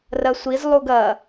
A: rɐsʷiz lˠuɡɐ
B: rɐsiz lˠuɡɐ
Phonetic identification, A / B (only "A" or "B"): A